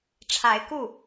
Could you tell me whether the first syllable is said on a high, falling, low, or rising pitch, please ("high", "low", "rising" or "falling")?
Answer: rising